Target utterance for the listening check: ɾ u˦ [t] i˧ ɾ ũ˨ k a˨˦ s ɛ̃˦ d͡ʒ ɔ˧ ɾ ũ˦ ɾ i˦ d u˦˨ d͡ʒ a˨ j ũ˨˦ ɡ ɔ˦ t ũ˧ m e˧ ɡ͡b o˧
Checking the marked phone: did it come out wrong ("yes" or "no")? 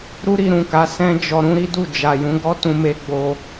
yes